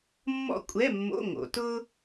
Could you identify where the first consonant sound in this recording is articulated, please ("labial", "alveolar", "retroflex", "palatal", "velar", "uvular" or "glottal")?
labial